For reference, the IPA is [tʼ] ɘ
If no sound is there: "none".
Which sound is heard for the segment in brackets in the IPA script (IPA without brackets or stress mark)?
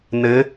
n̪